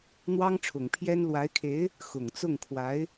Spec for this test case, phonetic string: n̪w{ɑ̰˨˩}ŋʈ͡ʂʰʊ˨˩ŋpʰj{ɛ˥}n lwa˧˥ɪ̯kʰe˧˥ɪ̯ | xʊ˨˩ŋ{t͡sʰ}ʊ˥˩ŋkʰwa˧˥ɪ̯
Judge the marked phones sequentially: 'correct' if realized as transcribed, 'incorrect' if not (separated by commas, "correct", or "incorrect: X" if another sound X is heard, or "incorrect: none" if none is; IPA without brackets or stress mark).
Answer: incorrect: ɑ˥, correct, incorrect: t͡s